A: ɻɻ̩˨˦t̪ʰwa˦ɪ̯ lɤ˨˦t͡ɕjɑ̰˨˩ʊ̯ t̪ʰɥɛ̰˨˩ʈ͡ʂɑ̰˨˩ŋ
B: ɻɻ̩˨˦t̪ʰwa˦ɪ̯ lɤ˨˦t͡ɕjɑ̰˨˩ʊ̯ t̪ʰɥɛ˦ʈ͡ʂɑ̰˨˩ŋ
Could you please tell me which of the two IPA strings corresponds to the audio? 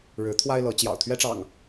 B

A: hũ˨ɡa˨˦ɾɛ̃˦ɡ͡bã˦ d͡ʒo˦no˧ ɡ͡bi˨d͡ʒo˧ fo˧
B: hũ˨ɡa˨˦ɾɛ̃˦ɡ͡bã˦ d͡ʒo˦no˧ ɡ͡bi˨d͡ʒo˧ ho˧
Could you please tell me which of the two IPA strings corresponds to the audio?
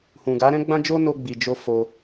A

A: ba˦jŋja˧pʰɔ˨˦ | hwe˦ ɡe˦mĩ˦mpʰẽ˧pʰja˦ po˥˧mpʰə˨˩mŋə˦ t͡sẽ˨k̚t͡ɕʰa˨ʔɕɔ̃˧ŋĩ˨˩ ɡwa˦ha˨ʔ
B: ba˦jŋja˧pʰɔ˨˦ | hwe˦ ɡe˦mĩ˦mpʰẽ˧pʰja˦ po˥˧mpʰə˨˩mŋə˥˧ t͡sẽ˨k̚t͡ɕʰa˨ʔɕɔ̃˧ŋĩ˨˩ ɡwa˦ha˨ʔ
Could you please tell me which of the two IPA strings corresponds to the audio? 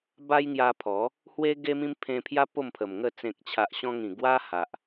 B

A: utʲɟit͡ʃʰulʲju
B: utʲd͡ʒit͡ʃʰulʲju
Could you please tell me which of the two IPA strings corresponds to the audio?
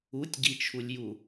A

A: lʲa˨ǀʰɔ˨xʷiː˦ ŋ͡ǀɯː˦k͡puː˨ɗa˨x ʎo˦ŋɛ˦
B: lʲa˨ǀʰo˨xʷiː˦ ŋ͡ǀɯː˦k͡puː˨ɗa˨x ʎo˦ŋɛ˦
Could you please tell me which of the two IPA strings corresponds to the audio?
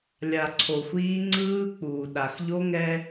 B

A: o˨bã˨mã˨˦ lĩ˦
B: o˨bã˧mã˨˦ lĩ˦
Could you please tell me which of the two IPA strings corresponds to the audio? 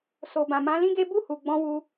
A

